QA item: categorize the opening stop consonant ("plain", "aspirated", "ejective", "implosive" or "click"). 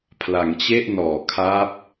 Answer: aspirated